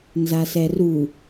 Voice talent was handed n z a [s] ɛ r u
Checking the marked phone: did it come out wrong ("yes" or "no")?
no